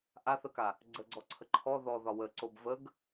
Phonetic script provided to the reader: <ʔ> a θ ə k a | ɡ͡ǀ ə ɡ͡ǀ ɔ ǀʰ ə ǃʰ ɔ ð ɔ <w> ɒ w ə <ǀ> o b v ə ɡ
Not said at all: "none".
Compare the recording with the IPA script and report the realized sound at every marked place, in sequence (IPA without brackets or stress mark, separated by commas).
ʔ, ð, ǀ